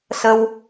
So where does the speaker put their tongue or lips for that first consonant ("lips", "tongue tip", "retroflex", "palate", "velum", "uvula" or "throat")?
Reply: tongue tip